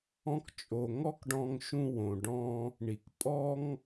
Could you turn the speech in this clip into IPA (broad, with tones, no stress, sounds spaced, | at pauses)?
ɔ̃˧ k t͡ʃʼ o˩ ŋ ɔ˥ k ɖ ɔ̃˧ ŋ ʃ ũ˧ w õ˩ ɖ ɔ̃˧ | ɳ i˩ k pʼ ɔ˥ ŋ